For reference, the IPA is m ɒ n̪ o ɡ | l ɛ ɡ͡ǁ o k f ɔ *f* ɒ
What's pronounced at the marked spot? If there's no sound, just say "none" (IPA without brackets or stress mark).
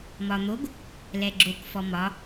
m